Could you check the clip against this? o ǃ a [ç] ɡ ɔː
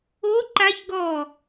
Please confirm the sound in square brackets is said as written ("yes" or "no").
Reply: yes